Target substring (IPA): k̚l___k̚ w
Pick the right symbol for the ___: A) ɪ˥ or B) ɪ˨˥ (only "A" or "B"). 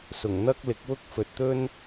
B